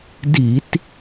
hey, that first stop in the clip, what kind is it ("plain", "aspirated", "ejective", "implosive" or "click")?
plain